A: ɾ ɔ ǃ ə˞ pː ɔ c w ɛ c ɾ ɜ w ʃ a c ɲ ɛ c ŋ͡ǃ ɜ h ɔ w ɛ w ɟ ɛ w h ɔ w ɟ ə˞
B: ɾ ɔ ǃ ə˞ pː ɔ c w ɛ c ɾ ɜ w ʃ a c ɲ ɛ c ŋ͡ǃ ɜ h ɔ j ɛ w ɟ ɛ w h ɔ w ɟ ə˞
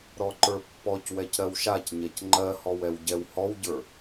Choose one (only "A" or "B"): A